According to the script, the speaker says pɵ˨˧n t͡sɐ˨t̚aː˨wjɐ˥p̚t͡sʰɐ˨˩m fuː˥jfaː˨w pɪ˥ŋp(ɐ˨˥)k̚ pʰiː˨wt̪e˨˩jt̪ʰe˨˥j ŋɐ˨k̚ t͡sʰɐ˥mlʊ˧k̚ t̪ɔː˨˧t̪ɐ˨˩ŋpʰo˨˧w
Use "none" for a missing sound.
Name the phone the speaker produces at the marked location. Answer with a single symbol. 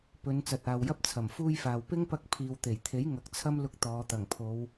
ɐ˧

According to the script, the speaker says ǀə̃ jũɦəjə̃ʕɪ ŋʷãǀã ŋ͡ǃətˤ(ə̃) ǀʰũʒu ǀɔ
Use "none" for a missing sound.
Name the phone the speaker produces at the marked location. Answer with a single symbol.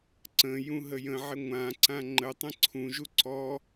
ə̃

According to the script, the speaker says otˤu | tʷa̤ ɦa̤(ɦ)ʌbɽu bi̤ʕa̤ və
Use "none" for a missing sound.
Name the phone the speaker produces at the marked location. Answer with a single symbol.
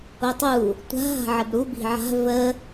ʕ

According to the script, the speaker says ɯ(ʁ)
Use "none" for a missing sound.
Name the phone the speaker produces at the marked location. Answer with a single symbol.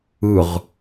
ʁ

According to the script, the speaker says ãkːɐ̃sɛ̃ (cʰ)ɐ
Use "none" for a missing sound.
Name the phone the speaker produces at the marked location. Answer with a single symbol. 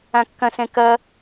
k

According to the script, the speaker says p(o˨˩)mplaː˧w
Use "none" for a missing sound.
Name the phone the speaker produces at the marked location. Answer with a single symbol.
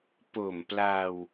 o˨˩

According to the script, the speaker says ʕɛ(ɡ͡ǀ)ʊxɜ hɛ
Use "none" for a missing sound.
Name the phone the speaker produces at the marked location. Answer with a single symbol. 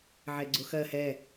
ɡ͡ǀ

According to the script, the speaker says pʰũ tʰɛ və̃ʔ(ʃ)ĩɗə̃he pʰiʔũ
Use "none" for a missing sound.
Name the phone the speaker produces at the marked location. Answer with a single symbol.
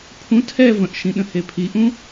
ʃ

